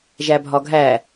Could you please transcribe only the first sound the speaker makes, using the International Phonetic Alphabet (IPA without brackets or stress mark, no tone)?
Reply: ʒ